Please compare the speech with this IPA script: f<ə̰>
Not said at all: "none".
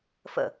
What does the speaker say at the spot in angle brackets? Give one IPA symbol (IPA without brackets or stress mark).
ə̰